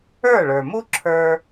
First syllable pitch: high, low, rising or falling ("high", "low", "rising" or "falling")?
falling